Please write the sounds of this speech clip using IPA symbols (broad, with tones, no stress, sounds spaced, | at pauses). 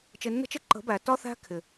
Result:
t͡ʃ ɪ˧ nː ə̤˦ t͡ʃ ɪ˦ ǃ ə̤˨˦ b æ˨ t ɒ˦ θ æ̤˦ kʰ ɪ˨